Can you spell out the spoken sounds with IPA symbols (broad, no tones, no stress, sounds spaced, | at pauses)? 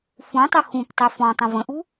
f ũ tˤ ə x ũ p tˤ ɘ f ɔ̃ tˤ ə̃ v ə̃ ʔ u